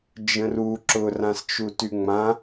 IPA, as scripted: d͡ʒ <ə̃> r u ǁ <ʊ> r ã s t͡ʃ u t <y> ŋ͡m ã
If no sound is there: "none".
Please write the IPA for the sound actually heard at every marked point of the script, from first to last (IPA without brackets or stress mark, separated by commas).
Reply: ə̃, ʊ, y